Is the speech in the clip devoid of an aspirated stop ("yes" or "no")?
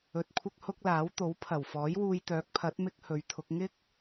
no